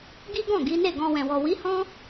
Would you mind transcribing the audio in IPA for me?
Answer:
ɡ i˦ ɡ ɔ̃˦˨ ɡ i˨˦ n e˦˨ ɡ ɔ̃˧ w ɛ̃˨ w ɔ˨ w i˨˦ h ɔ̃˦

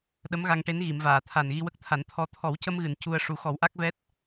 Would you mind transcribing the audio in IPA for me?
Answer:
ɗ ə˧˥ m ɣ a˧ ŋ ʈ e˧˥ n ɣ i˨˩˨ m v aː˨˩˨ t̪ʰ a˨˩ n ɣ i˧ w ə˦˥ k̚ t̪ʰ a˨˩˦ n t̪ʰ ɔ˧ t̪ʰ ɔ˨˩˦ w c ə˧ m ɣ ɨ˨˩˨ n c u˧ ə̯ ʂ u˨˩˦ x ɔ˨˩˦ w ʔ a˦˥ k̚ v ɛ˦˥ t̚

